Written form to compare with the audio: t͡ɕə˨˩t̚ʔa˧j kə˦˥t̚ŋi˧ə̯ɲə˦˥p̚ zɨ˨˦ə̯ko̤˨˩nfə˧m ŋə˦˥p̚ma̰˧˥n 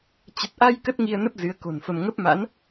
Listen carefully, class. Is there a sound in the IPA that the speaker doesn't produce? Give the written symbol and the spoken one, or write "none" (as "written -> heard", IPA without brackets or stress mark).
ɲ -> n